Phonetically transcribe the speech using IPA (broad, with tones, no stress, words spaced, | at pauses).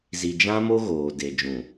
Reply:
zi˨d͡ʒã˦mo˦ ɣoː˨de˨d͡ʒũ˨